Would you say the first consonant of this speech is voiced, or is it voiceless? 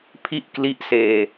voiceless